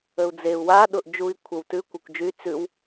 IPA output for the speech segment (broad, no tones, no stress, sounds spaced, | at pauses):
ə u̯ d͡z e u̯ w a ɗ ʊ ʔ d͡ʒ u i̯ kʷʰ ə w t ʉ kʷ ɛ kʷ d͡ʒ y t͡s ʉ w